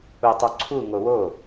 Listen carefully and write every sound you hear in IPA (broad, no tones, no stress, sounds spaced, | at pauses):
u tˤ u ǀʰ u ŋ o w o